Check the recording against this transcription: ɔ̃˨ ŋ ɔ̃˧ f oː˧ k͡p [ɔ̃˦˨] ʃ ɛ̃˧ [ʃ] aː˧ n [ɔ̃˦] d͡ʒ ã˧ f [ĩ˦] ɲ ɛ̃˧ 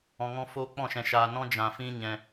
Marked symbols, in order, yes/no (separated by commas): yes, yes, yes, yes